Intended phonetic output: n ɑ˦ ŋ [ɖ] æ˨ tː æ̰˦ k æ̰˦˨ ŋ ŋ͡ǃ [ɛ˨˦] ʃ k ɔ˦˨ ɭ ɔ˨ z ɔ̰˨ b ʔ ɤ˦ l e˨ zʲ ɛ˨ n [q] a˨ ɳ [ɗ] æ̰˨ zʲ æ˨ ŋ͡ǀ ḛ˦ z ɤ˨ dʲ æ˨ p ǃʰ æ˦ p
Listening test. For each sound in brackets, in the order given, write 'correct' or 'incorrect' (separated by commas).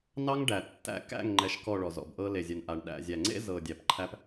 correct, incorrect, incorrect, correct